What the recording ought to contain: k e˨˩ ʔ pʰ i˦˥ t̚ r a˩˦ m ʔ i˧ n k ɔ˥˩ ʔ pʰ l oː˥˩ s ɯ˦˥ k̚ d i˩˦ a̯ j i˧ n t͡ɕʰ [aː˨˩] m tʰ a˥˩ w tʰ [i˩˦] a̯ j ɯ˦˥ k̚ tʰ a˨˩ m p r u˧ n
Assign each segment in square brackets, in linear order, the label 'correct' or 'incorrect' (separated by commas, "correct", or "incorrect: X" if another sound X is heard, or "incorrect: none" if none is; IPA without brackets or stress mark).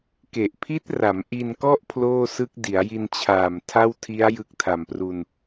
correct, incorrect: i˦˥